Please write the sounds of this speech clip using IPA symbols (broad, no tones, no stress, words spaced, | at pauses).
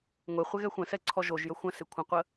ŋʷe χʷɪɣɛxʷə̃sɛ ǀʰɔʒoʒjə xʷə̃sɪ kʷʰə̃qʷə